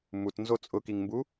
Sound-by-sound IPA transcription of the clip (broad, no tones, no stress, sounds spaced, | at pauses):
m u t n z o t͡sʼ ʊ k i ŋ m b u